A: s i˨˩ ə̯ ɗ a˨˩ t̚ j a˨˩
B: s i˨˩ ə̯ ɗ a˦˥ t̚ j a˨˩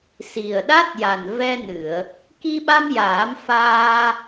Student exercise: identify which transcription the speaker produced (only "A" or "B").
B